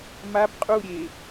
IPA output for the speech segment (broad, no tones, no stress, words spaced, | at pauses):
mab qʼuɾʲe